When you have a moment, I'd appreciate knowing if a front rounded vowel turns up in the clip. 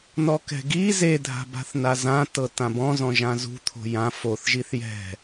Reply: no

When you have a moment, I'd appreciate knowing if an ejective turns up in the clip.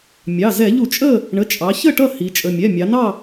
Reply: yes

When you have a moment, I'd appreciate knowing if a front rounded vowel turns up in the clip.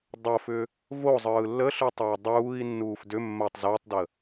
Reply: yes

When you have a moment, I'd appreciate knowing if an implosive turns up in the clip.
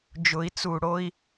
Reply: no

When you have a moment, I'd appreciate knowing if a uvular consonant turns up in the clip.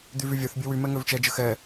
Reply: no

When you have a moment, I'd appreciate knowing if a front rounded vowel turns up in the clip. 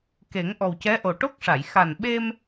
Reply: no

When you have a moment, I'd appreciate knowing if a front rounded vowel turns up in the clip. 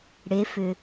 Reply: yes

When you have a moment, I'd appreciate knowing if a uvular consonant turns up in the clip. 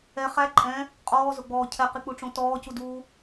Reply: yes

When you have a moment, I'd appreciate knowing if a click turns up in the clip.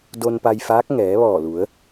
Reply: no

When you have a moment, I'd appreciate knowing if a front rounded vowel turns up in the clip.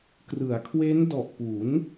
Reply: no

